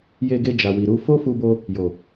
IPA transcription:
j e˧ ɡ e˧ d͡ʒ a˨ w i˨ ɾ u˧ f o˦ f u˧ b o˧ | j o˨

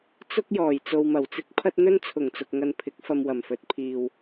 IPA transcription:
t͡s ʊ˥ k̚ j ɔː˨˩ j t͡s o˧ w m ɐ˨˩ w t͡s ɪ˥ k̚ pʰ ɐ˥ t̚ n̪ ɵ˥ n t͡sʰ ʊ˨˩ ŋ t͡s ʊ˨ k̚ ŋ ɐ˧ n pʰ ɪ˨˥ k̚ f ɐ˧ m w ɐ˨˩ m f ɵ˨˥ t̚ pʰ iː˨ w

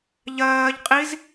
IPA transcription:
ʎ ɜː ʎ qʼ i z

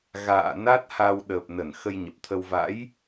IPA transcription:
ɣ a̰ː˧˨ n a˦˥ t̚ h a˧ w ɗ əː˨˩ p̚ n ə˧˩ n x ə˧ j ɲ ə˨˩ p̚ t̪ʰ ə˧ w v a̰˧˥ j

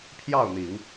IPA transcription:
pʰ j ɑ˥˩ ʊ̯ n̪ i˨˩˦ ŋ

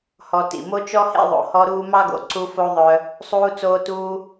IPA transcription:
h ɔ˨ t ḭ˩ m o˦ t͡ʃ ɔ˥ h ḛ˦ ðˤ o̰˨ h ɔ˦ ɾ uː˦ m ɑ˥ ɡ o̰˨ ǀ u˦ f o˥ ðˤ œ˦ | sˤ uː˦ t͡s oː˦ t uː˦

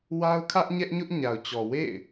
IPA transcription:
w a˦ ʊ̯ kʰ ä˦ ʔ ɲ ɛ˦ ʔ ɲ ʊ˦ ʔ ɲ a˨ ʊ̯ t͡ɕ ɔ˨ w ḛ˦˨ ɪ̯

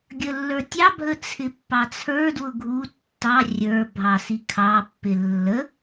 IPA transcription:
ɡʲ ə lː ə˞ tʲ ɑ bʱ ə t͡sʰ ɪ pː ɑ t͡sʰ ə˞ d w ʊ ɡʱ u tː ɑ rʲ ə˞ bʱ ɑ s i kʰ ɑ pː ɪ lː ə

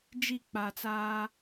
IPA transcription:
d͡ʒ i˦˨ k͡p a˨ t͡s aː˦

